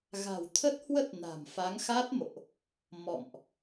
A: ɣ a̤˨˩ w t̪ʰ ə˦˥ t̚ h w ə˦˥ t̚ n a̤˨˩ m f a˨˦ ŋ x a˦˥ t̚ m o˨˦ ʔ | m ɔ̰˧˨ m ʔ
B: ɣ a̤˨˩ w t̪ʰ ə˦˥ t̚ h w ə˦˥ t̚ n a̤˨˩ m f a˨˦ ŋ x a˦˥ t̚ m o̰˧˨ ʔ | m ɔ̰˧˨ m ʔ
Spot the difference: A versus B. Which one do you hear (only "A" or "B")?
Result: B